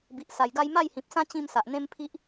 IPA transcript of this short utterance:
b i˨ ʔ s a˨˩ j ɡ a˦ j m a˥˧ j h ĩ˨ p̚ s ã˦ t͡ɕ ĩ˥˧ m s a˨ ʔ n̪ ẽ˦ m pʰ i˦ ʔ

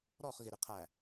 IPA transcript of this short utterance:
ɾ ɔ χ ɣ ɪ ɾ ɪ qʰ æ

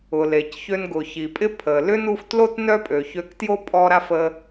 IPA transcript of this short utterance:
ʊ˩ l e˩ c ç ø˧ n ɡ ʊ˩ ç i˩ pʼ ɪ˥ pʰ ə˩ l ʏ˥ n u˧ f t l o˥ t n œ˥ pʼ ø˩ ç ø˧ k t j o˥ pʼ ɔ˧ ɾ a˥ f ə˧

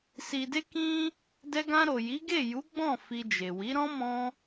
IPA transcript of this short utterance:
s i˨ d e˧ k ĩ˧ | d ɛ˧ ɡ ã˧ ɾ o˨ j i˨˦ ɡ e˦˨ j u˨˦ ɡ͡b ɔ̃˦˨ f i˧ d͡ʒ e˨ w i˨˦ ɾ ɔ̃˦ m ɔ̃˦

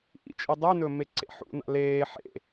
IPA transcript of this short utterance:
ʔ ḭ t͡ʃʼ i dˤ ʉ n ɵː m e ǀ ḛ ħ ṵ n a̰ l eː ħ ḛ

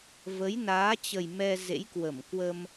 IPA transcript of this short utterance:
v ə˨˦ j n aː˨˦ t͡ɕ ə˨˩ j m ɛ˧ z ḛ˧˥ j k w ə˧˩ m k w ə˧ m

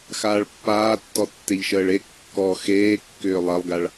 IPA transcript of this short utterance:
x aː ɭ pː aː tː ɔ tː e ʎ ʃ əː ɭ e kː ɔ x eː kː ʏː lˠ ɐ lˠ ɡ a ɭ

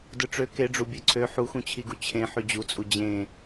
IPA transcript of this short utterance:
d ɯ ʈ͡ʂ ø k e ɖ͡ʐ u bʲ ø ǀʰ ø ħ u x ũ t͡ɕʰ i ɡ u t͡ɕʰ ẽ ħ y d͡ʑ u t͡sʼ u d͡ʑ ẽ

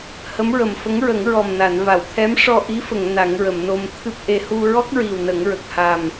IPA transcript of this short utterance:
h ə˧˥ m ɹ ə˨˩ m f ə˧˥ ŋ ɹ ə˨˩˦ ŋ ɹ ɔ˨˩ m n a˨˩˨ n v a˨˩˨ w t̪ʰ ɛ˧˥ m ʂ ɔ˧ ʔ i˧˥ f ə˨˩˨ ŋ n a˨˩˦ ŋ ɹ ə˨˩˨ m n o˧ m t̪ʰ ɨ˦˥ p̚ ʔ e˧ h u˧ ɹ ɔ˦˥ k̚ ɹ i˨˩ w n ə˨˩˦ ŋ ɹ ə˨˩ k̚ h a˨˩ m

